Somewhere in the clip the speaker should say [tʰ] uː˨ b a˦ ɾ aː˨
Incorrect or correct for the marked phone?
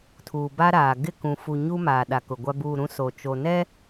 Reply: correct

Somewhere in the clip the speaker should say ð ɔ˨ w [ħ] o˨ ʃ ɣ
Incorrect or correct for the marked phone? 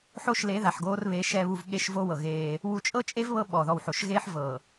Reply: correct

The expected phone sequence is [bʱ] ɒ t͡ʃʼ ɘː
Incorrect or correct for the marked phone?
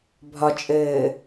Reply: correct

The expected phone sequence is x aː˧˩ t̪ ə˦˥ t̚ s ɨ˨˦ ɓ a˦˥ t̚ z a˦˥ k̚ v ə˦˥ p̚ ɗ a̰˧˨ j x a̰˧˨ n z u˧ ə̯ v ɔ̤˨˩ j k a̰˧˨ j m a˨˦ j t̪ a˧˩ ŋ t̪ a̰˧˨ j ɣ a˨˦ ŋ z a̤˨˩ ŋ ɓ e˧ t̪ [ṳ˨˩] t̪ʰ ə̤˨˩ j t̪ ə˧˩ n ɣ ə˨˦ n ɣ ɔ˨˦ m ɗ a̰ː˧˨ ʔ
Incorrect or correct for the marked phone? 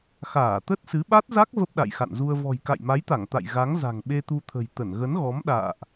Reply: incorrect: u˧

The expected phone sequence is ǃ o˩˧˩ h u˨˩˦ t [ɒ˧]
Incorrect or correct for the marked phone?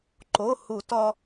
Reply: correct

